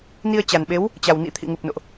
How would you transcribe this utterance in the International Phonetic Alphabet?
ni˧ə̯t͡ɕa˨˩nɓe˨˦w | t͡ɕa˨˩wnḭ˧˥ t̪ʰḭ˧˨ŋu˨˩p̚ no̰˧˨ʔ

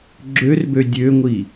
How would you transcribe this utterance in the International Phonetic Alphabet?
ɡ͡ǁørbø dʲøŋʷi

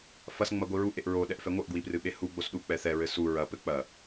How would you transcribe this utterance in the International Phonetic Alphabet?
fɐs ŋ͡mɐɡʷiɹu ʔeʔɹo ɗɛʔfɛŋʷɘʔ ɡwiprɨɓehu ɡ͡bosɗu k͡pɛθɛ ɹɘsu ɹɐ pɘk͡pɐ

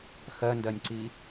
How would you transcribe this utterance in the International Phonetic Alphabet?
xɜndɜnʲǀi

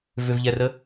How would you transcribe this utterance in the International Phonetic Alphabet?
vʏvʎɛrə

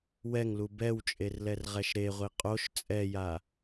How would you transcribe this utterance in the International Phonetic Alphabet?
wɛŋlu bɛwt͡ʃʼerlɛrʁɛʃ ɾeʁʷi qʼoʃ t͡sʼɛja

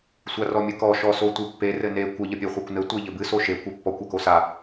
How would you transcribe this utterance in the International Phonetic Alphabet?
sʷarɔmʲɨkɔ ʃɔsotʷɨpːe rɘne kʷə ʎəpʲeχʷakʷnɘ tʷeʎɘbɨ soʃe kʷepːɔkʷ akosa

